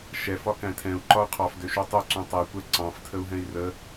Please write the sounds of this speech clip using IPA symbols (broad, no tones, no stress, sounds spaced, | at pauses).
ʃ ɛ f ɒ k æ̃ tʰ ɛ̃ u̯ ǃ ɒ u̯ qʰ ɑ f d ø ʃ u tˤ ø ǀ ũ tˤ ɛ kʷ ɛ ǀ ɑ̃ f tʰ ə u̯ ɦ ɛ̃ i̯ r ə